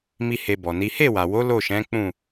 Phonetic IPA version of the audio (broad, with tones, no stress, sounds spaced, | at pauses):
m i˦ h e˧ b ɔ˨ n i˨˦ h e˦˨ w a˨ w o˨˦ l o˦˨ ʃ ɛ̃˨˦ k͡p ũ˦˨